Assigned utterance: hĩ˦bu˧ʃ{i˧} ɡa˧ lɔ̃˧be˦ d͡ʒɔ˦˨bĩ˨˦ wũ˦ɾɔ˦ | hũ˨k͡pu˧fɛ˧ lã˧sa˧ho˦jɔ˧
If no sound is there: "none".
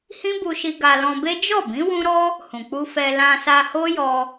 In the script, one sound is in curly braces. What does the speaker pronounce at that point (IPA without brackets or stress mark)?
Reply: i˧